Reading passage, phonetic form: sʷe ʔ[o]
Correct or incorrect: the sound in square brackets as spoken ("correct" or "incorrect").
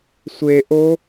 correct